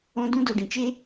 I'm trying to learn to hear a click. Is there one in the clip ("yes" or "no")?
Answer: no